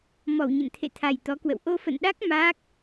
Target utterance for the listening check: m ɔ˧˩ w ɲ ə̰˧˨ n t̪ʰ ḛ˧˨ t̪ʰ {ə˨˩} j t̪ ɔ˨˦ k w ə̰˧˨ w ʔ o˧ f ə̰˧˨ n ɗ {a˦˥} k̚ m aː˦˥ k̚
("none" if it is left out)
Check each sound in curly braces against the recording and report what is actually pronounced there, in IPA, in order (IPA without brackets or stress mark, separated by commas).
a˨˩, a˦˥